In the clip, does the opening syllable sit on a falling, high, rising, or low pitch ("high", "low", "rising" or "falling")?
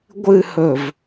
low